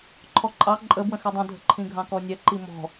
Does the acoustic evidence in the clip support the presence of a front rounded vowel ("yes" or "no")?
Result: no